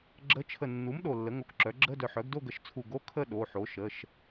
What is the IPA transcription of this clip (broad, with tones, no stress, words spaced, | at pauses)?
ɡ͡ǁə˧˥˧t͡ʃʰə˧˩ nːu˩˥m ɗo˧˩lːə˩˥ŋo˧˩kǁœ˩˥ ɡ͡ǁə˧˥˧dœ˧˩ħ œ˩˥ɡdo˥˧ɡə˧˩ʃt͡sʰu˧˩ ɡo˧˥˧ kʰə˥˧ ɗo˩˧˩ħo˩˥ʃə˩˧˩ʃ